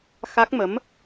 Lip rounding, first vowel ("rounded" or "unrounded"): unrounded